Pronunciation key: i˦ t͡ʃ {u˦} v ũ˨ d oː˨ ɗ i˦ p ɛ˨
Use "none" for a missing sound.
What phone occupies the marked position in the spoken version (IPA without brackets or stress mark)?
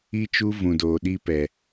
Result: u˦